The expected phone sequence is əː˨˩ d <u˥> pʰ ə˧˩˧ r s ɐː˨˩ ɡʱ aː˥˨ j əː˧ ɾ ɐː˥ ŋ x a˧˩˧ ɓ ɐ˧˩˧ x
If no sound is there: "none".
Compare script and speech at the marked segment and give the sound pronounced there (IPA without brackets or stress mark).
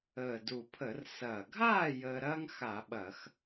u˨˩